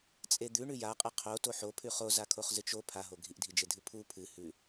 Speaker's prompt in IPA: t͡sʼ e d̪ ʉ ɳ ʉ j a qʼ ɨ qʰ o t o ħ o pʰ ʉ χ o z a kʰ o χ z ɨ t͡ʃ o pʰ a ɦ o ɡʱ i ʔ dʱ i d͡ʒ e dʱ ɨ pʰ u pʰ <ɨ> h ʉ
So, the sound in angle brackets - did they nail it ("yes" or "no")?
yes